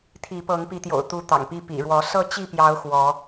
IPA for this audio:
t̪ʰ i˨˦ p ɤ˨˦ ŋ p i˨˦ t̪ j o̰˨˩ ʊ̯ t̪ u˨˦ t̪ ɑ̰˨˩ ŋ p i˥˨ p ḭ˨˩ ɻ w ɔ˨˦ s ɤ˥˨ t͡ɕ i˥˨ p j ɑ˨˦ ʊ̯ x w ɔ˨˦

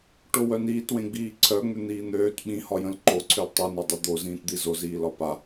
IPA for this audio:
ʈ o w œ n iː t w ẽ ɡ͡b iː ǀʰ œ ŋ͡m ʏ n̪ iː n̪ øː t ɓ ĩ h ɒ j ə̃ l ǃ o ǀʰ ø l tˤ i n ɒ dˤ ə d̪ o z ĩː t d̪ i z o z iː l ɒ p a

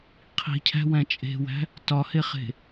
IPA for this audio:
qʰ i̤ cʰ æ̤ w æ̃ t͡ʃʼ e̤ w æ̤ | t ɒ h e χ e̤

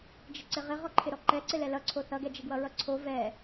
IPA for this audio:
d͡ʒ ɪ ǀ ɪ ʁ ɪ ʁ ɔ ǃʰ ɪ ɾ ɔ ǃ ɛ ǀ ɪ l ɛ l ʌ ǀʰ o θ ʌ ɡ ɛ d͡ʒ ɪ ɡ w ʌ ɹ ʌ ǀʰ o v ɛ

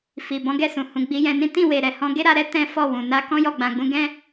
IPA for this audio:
f i˨ b ɔ̃˨˦ ɡ ɛ˦˨ s ũ˨ h ũ˨ ɡ͡b i˨˦ j ɛ̃˧ n ĩ˦ t ĩ˦˨ w e˨ ɾ ɛ˨ h ɔ̃˧ ɡ e˦ ɾ a˧ ɾ ɛ˦ t ɛ̃˦ f ɔ˦˨ w ũ˨ n a˧ k ɔ̃˦ j ɔ˦˨ ɡ͡b ã˨ ɡ͡b ũ˧ ɡ ɛ̃˦

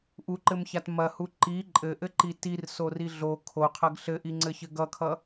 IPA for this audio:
ʔ u ǃ ɘ m ç a t m ɐ h u ǃ i ǃʼ ɘ ʔ ɘ ǃ i t i r s o r i ɮ o kʰ o qʰ ɐ ɡ ɬ ɘ ʔ i ŋ͡ǀ ɘ ç ɘ ɡ ʌ kʰ ʌ

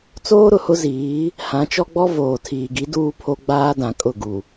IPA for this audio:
t͡s oː˦ ɾ ʊ˨ h ʊ˦ z iː˨˦ | h ã˨˦ t͡ʃ ɔ˦ ɡ͡b ɔ˦ v oː˨ tʰ iː˨ ɡ i˨˦ d uː˦ pʰ o˦ ɡ͡b aː˦ d ã˨ kʼ ʊ˦˨ ɡ u˨

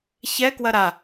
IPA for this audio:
ç ɛ k w ɐ ɾ a

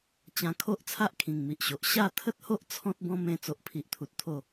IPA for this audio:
t͡ɕ ã˧ kʰ o˦ ʔ t͡sʰ a˦ ʔ kʰ ĩ˨˩ ŋ m i˨ ʔ ɕ o˨ ʔ ɕ a˥˧ t̪ʰ ə˦ t̚ h o˦ ʔ t͡sʰ ɔ̃˦ t̚ b ɔ̃˦ m ẽ˧ t͡s o˨ ʔ pʰ i˨ ʔ t̪ʰ u˨ t̚ t̪ʰ o˥˧

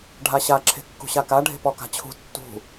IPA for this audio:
ɖʱ a ɕ a ǁʰ e̤ kː ṳ ɕ a k a ɖʱ e̤ p ɔ k a̤ t͡ɕʰ ṳ tː ṳ

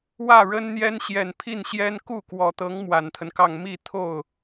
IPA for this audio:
w ä˥˩ ɻ ə˥ n n̪ j ɛ˥ n ɕ j ɛ˨˩ n pʰ i˥˩ n ɕ j ɛ˥ n k u˥˩ k w ɔ˨˩ t̪ ɤ˧˥ ŋ m w a˨˩ n t̪ʰ ə˦ n k ɑ˥˧ ŋ m i˥˧ t̪ʰ o˥˩ ʊ̯

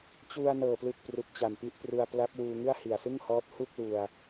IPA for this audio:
t͡ɕ u˧ a̯ n ɤː˨˩ p l ɯ˨˩ k̚ p r u˨˩ k̚ t͡ɕ a˨˩ m p i˦˥ ʔ p r u˧ a̯ p l a˦˥ p̚ w uː˧ ŋ ɯ˥˩ a̯ h i˨˩ a̯ s ɯ˥˩ ŋ h ɔː˦˥ t̚ h u˥˩ k̚ l u˧ a̯

